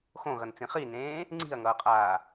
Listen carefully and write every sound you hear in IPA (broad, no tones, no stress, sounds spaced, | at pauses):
x õ ɣ ʌ n t͡s ĩ χ i n ẽː | ŋ͡ǀ i̤ ɐ̯ ŋ ʌː qʼ aː